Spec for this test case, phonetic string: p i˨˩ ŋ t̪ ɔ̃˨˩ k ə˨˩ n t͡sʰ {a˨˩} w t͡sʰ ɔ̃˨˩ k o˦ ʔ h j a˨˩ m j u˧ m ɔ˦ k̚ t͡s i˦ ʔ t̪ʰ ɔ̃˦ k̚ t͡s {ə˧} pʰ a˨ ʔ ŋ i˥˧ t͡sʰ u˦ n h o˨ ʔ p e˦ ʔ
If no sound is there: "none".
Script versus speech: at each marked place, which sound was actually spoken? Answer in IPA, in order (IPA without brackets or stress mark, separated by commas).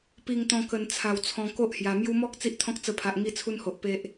a˨˩, ə˧